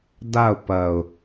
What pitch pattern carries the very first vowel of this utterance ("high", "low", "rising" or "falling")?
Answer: falling